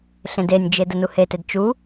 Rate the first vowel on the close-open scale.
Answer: mid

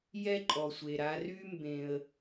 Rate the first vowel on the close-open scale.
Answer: mid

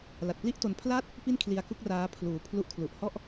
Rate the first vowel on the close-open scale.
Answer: open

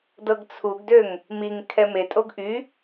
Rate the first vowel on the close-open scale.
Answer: mid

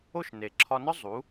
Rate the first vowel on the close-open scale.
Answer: mid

